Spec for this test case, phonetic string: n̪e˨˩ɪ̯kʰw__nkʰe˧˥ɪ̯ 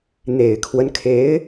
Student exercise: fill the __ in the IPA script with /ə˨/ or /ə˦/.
ə˦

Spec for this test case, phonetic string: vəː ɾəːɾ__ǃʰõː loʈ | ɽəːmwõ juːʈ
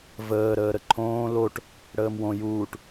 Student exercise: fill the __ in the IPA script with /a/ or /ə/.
ə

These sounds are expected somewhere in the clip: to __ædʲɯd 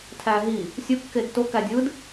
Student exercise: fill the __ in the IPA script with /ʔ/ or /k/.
k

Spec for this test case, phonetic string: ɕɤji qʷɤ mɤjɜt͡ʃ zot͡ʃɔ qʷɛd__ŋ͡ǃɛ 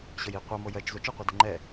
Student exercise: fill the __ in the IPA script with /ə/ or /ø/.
ə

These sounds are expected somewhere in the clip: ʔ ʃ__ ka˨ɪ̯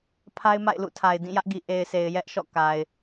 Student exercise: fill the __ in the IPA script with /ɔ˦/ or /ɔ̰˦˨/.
ɔ̰˦˨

